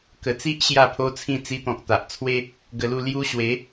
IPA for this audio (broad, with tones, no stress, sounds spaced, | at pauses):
k ə˨˩ t͡s i˦ ʔ ɕ j a˥˧ pʰ o˦ t͡sʰ ĩ˥˧ t͡s i˧ t̪ ɔ̃˨ k̚ t̪ a˨ ʔ t͡sʰ w e˦ | ɡ ə˧ l u˥˧ l j u˦ ɕ w e˨˦